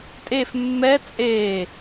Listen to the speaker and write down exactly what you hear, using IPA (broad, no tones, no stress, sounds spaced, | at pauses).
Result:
tʼ e f mː ɛ t͡sʼ e